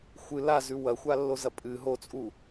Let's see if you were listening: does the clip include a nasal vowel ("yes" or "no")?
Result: no